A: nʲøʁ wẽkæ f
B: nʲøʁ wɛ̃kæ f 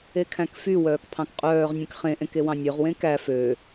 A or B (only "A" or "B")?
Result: A